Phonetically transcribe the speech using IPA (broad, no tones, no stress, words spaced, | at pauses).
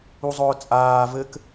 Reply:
uzˤʊːt͡sʼaː vɘk